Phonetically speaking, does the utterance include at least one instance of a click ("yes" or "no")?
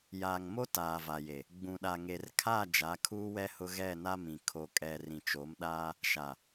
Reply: no